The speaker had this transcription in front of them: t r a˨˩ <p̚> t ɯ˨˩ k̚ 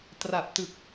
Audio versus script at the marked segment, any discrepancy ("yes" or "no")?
no